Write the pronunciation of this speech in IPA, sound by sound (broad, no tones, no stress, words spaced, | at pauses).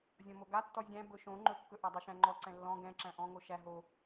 zʲɔ̃moɡa tːɔzʲæ̃ bɵʃõ ŋ͡ǃɵkːɵ ʔadˤoʃæ̃ŋ͡ǃɔ ǀɛ̃lːɔ̃ ɡɛ̃ǁæ̃ ʔɔ̃ŋo ʃæ ɦo